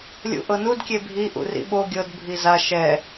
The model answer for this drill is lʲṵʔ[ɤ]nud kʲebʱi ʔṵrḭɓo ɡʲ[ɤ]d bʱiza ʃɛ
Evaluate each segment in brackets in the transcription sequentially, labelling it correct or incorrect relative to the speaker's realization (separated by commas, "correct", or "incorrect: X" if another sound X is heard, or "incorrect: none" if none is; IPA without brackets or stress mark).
correct, correct